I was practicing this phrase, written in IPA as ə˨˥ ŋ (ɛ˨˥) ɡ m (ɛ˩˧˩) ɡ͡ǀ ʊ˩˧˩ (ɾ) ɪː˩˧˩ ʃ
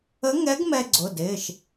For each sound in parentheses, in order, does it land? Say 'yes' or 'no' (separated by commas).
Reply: yes, no, no